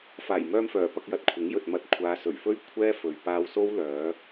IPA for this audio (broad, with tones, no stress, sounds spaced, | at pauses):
f aː˨˩ j m œː˧ m f œː˨˩ p ɐ˧ k̚ j ɐ˨ t̚ kʷʰ ɪ˨˥ ŋ j ɵ˨ t̚ m ɐ˧ t̚ kʷʰ aː˨˧ s ɵ˨˩ ɥ f ɵ˥ ɥ kʷʰ ɛː˥ f ɵ˨ ɥ p aː˧ w s o˥ w l œː˨˧